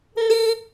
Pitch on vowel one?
high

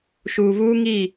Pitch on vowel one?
low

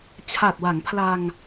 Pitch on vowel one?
low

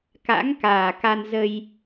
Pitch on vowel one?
rising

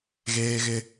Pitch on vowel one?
high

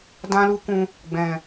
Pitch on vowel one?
high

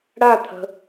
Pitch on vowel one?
falling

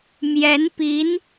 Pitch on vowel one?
rising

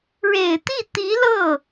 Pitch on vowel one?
low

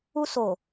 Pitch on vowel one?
high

